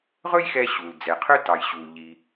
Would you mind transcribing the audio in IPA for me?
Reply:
ʁ ɵ˥ j x ɛ˧ ɕ u˩ l d͡z ɛ˩ qʰ ɵ˥ t ɑ˩ j ɕ uː˩ ʎ i˩

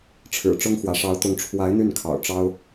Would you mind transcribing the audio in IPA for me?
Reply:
ʈ͡ʂʰ ɻ̩˨˩ ʈ͡ʂ ʊ˥ ŋ x w ä˧˥ ʂ ɑ˧˥ ʊ̯ t̪ ʊ˧˥ ŋ ʈ͡ʂʰ w a˧˥ ɪ̯ n̪ y˥˩ n kʰ ɑ̰˨˩ ʊ̯ ʈ͡ʂ ɑ˥ ʊ̯

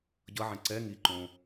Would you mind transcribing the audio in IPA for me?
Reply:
ɟ ʌ ʕ ɛ̃ ǀ ɛ ŋ i ǃ õ

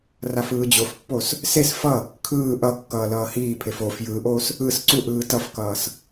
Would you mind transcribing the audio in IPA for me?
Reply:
r a f ɯː d͡ʑ o f pː o s | s e s f ʌ | kʰ ɯː ʔ ʌ kː ʌː l ʌː h iː pʰ e f o f j ɯː ʔ oː s | ɯ s ǀ u ʔ ɯː t ʌ f k ʌː s

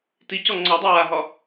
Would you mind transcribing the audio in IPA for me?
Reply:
t i c ɔ ŋ͡ǀ ɔ dˤ e w a ɦ ɒ

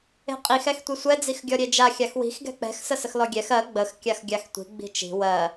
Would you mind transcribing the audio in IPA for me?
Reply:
e̤ qʼ i x ɛ x tʷ i sʷ ɛ d͡z i x ɡʲ ɔ ɾʲ e d͡ʒ a xʲ a x w i̤ x ɡ ɛ̤ k͡p ɛ̤ x s ə s ə x l ɔ ɡʲ ɛ x ɜ ɡ͡b ə x kʲ a x ɡʲ a x tʷ i̤ ɡ͡b i̤ t͡ʃ i̤ w ɜ

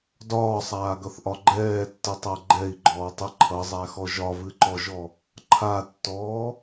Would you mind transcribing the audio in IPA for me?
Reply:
d ɒː sˤ aː ɡ ʌ θ ʔ ɒ ɡ͡ǃ ɛː tː ɨ tˤ æ ɡ͡ǃ ɛ i̯ ɡ͡ǃ ɔː tˤ ɨ ǃʰ ʌ zˤ æ x ɔ ʒ ɒ v ɨ ǃ ɔ ʒ ɔ | ǃʰ a tː ɔː

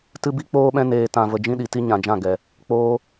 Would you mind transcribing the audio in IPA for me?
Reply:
t ɨ˦ b i˦ k͡p oː˦ ɓ ɛ̃˦ n eː˧ t ã˧ v ə˧ d͡ʒ ĩ˦ ɗ i˨ t i˦ ɲ ã˨ d͡ʒ ã˦˨ ɡ ɛ˨ | k͡p oː˦

